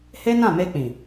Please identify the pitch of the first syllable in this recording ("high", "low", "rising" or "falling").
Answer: high